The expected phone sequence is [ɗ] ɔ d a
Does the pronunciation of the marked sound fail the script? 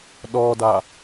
no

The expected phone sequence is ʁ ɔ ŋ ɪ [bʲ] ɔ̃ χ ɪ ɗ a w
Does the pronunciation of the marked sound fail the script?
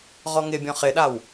no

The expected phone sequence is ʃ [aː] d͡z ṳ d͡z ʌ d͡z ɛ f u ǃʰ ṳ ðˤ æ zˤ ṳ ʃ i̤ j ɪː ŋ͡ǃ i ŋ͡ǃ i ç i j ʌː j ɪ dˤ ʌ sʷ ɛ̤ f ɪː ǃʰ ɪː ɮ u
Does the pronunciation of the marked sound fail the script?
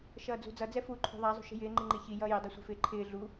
yes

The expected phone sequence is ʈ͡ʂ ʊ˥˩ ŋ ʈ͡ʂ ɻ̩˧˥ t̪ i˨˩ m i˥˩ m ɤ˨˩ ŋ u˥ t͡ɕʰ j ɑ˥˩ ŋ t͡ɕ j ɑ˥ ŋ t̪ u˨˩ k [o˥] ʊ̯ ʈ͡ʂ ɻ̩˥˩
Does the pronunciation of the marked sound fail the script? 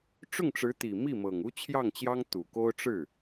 no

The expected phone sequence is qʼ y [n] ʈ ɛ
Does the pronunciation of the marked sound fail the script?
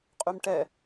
yes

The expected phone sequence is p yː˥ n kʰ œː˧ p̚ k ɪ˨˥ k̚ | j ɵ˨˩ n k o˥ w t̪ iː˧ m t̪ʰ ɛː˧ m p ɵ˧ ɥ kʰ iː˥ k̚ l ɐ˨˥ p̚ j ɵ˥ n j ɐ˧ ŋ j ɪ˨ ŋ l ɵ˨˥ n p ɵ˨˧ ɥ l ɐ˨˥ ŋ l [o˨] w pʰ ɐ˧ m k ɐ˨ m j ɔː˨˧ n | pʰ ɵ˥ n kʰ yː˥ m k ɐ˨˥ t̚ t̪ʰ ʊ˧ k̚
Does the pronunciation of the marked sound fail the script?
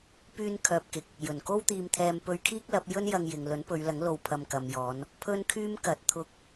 yes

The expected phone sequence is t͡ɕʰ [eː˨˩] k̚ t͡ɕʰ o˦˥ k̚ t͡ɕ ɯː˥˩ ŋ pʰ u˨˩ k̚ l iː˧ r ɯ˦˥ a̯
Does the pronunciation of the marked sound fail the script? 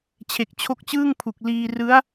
yes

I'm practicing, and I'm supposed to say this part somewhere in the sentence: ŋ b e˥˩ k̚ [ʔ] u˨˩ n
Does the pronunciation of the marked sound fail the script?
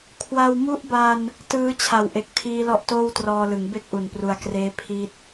no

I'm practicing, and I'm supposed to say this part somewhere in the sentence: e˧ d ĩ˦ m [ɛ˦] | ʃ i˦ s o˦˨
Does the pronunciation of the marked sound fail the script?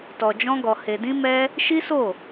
no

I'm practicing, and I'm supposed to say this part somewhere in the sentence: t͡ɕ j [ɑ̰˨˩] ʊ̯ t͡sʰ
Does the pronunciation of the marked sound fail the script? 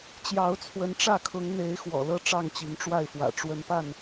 yes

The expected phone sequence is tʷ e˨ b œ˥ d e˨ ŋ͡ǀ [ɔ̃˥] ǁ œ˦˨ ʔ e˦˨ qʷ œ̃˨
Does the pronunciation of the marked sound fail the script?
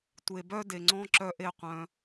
no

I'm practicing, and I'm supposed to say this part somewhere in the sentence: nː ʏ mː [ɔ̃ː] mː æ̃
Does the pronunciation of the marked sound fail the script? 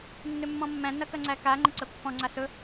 yes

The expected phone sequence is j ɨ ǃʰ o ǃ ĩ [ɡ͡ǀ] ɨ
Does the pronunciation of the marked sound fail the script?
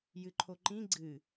no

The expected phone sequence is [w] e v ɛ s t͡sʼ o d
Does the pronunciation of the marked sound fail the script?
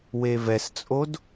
no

